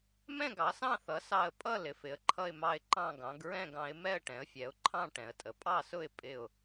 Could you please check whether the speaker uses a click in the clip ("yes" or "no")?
yes